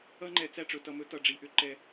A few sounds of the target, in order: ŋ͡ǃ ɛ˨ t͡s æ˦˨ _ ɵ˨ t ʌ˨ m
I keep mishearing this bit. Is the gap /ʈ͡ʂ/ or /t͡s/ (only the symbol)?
ʈ͡ʂ